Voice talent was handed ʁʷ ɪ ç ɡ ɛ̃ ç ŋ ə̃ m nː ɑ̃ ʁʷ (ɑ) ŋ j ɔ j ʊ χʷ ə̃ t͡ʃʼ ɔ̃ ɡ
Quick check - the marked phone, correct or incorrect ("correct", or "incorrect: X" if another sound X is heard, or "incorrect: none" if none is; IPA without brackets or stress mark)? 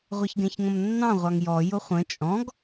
correct